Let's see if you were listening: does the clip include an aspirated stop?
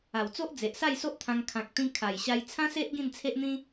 yes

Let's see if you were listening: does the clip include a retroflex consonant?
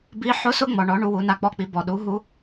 yes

